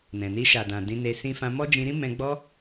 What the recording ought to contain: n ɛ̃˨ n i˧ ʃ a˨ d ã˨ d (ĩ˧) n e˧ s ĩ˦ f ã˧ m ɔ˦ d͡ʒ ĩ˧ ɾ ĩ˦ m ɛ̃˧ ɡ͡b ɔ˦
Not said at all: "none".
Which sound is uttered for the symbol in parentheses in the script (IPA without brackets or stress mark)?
ĩ˧